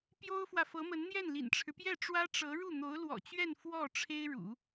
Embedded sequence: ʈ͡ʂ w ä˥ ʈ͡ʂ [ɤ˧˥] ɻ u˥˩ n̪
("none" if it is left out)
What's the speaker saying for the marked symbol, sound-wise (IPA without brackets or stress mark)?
ɤ˧˥